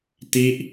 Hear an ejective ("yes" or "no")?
no